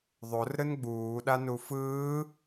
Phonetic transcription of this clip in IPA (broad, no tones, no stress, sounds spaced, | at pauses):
ðˤ o r ɾ ɯ n ɡ͡b uː ɗ a n u f ɯː